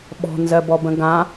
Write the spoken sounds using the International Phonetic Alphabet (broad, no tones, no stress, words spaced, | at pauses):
ɓɔ̤nzɜbɔbə̃ ɡã